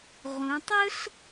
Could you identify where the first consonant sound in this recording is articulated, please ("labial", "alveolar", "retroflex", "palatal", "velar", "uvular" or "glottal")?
uvular